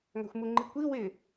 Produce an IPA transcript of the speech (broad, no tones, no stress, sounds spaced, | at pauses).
ŋ a̤ xʷ m u ŋ͡ǃ i kʷ i w ɪ